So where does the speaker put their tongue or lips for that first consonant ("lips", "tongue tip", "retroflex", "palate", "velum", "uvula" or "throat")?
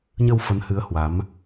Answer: palate